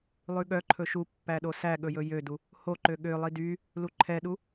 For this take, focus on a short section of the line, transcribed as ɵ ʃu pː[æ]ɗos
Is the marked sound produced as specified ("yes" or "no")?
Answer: yes